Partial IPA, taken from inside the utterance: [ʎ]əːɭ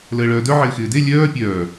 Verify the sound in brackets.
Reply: incorrect: l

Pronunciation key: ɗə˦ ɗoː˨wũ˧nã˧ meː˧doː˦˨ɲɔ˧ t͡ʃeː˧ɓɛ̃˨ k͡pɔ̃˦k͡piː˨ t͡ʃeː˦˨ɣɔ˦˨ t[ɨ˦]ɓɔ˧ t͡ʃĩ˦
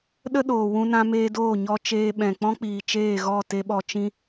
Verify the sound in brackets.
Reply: incorrect: e˦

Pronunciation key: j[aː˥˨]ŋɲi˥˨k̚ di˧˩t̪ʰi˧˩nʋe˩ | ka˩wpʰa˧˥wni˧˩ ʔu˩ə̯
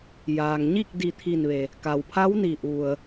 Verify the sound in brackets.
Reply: incorrect: aː˩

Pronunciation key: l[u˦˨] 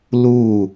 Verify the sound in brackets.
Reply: correct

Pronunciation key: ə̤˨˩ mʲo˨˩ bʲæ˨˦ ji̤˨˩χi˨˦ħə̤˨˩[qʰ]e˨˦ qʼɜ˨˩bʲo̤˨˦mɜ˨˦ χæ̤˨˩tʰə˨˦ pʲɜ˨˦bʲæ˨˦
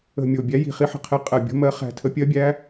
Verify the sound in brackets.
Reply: correct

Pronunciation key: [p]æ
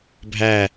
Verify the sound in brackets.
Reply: incorrect: bʱ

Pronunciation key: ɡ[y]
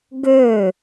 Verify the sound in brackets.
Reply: incorrect: ø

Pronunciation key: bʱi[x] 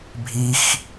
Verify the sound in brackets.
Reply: correct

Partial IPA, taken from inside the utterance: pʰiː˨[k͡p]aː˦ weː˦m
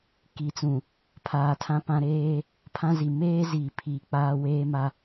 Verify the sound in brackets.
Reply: correct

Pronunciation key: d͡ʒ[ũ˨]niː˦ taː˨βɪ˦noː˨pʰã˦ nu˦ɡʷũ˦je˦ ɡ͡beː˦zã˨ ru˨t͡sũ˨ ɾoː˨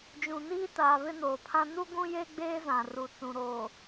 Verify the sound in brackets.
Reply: correct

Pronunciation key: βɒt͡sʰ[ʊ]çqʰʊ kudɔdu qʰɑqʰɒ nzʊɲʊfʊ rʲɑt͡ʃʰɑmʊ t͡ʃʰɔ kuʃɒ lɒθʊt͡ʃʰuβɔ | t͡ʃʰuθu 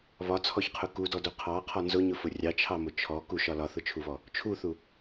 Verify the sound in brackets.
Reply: incorrect: ɔ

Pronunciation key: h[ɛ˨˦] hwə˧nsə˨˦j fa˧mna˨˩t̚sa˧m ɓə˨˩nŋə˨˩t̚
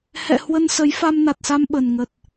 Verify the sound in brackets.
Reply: incorrect: ɛ̰˧˨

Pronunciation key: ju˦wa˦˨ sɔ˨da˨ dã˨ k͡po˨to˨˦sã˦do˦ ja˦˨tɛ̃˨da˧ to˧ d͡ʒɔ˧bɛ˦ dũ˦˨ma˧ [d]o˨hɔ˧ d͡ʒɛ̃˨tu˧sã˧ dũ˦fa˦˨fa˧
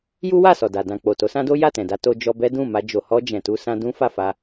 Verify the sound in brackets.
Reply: incorrect: d͡ʒ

